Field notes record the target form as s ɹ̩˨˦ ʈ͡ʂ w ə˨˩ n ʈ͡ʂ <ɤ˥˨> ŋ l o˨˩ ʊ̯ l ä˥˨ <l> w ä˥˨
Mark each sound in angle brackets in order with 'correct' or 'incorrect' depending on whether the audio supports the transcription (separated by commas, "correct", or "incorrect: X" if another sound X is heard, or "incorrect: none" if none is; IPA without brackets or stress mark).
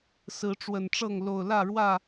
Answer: correct, incorrect: ɻ